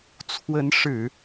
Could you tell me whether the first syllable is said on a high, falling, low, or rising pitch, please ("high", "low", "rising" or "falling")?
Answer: rising